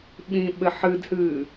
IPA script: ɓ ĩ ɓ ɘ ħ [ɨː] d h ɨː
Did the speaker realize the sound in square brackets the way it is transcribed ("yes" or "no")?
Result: no